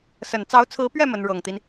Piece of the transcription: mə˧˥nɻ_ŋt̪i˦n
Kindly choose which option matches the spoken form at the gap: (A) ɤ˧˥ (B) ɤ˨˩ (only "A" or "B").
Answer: B